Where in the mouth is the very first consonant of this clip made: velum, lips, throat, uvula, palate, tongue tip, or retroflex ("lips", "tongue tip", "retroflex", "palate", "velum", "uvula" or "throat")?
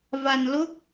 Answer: lips